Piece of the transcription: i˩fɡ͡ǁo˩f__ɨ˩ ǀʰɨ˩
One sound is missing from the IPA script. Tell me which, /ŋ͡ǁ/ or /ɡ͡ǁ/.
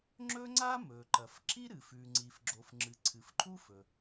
ŋ͡ǁ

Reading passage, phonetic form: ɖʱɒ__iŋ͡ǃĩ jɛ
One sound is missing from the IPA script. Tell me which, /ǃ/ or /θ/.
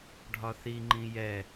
θ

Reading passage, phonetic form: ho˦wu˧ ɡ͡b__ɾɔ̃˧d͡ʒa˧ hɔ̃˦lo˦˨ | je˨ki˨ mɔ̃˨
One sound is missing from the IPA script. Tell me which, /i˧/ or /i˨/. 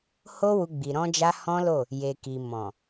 i˨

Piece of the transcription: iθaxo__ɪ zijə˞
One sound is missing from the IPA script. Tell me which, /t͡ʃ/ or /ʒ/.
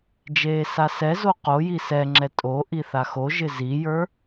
ʒ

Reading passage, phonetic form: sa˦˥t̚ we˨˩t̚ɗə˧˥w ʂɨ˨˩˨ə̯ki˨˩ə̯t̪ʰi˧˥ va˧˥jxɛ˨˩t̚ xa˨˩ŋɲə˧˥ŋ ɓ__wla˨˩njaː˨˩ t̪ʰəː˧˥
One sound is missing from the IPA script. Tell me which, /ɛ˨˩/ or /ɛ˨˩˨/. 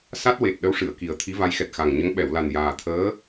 ɛ˨˩˨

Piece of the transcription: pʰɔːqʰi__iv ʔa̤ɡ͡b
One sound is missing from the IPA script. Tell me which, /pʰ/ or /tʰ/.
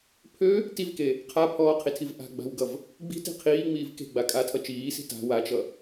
tʰ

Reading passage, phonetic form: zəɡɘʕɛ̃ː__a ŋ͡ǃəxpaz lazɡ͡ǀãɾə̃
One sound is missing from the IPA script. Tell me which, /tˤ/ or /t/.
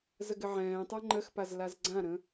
tˤ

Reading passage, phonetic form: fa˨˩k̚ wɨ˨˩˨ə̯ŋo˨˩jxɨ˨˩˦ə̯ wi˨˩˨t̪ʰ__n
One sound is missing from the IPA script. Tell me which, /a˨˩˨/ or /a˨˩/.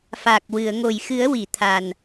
a˨˩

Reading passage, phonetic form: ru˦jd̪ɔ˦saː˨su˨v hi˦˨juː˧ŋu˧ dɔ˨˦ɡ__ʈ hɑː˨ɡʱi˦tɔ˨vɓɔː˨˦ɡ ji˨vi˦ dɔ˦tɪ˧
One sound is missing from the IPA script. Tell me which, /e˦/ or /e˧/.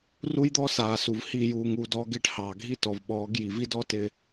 e˧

